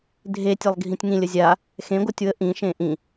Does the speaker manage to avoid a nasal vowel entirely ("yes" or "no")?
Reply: no